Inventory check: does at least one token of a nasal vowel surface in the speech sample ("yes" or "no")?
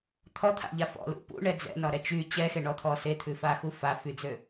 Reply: no